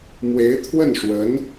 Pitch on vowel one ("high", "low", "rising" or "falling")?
rising